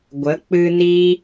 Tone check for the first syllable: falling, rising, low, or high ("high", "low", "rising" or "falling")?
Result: rising